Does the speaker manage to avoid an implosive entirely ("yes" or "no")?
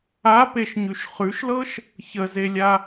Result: yes